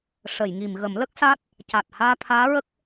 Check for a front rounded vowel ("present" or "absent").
absent